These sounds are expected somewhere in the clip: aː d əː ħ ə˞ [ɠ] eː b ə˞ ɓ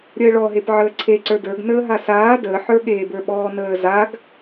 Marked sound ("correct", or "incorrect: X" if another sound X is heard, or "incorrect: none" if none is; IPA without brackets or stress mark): correct